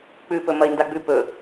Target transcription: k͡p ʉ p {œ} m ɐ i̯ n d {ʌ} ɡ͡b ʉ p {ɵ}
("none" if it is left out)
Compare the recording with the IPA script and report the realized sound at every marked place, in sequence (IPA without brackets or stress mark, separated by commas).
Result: ɵ, a, ɵ